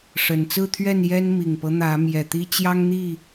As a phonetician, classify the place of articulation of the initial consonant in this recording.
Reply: retroflex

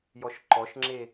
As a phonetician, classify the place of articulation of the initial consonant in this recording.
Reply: palatal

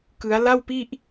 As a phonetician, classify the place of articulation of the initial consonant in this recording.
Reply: velar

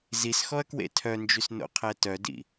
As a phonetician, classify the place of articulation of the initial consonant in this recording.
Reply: alveolar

